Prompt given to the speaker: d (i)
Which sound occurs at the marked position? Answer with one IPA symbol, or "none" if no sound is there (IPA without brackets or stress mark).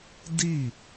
i